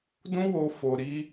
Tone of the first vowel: high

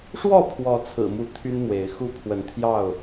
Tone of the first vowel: falling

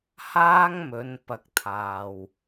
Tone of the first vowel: high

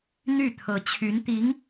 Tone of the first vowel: falling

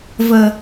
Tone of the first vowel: low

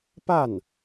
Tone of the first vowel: falling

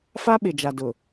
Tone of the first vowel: high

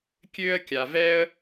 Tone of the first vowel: high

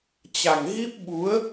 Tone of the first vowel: low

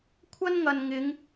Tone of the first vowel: high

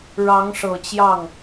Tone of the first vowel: rising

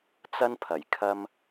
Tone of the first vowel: high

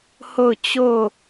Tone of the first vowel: falling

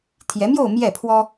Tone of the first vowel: rising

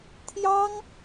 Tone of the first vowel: high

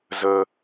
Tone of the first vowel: high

